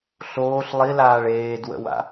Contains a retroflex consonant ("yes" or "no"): yes